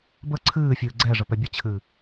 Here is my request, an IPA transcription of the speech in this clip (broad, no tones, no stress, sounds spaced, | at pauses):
b ə ǀʰ ɨː fʲ ɨː ɡ͡ǀ ɛ ʐ ə p ɛ bʲ ə t͡ɕʰ ɨ